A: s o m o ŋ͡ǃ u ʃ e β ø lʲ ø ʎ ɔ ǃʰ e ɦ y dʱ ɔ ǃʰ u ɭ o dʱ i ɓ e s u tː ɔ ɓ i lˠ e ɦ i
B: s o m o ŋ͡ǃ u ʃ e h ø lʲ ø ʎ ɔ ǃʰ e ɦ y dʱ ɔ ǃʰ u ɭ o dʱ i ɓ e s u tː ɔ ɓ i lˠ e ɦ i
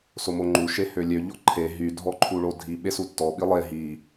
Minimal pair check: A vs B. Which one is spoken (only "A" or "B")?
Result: B